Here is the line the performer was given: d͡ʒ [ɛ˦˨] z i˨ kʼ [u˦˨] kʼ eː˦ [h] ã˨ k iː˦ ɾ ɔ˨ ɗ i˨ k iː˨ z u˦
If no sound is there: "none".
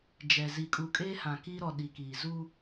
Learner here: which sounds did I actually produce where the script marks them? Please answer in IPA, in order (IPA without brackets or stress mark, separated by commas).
ɛ˨, u˨, h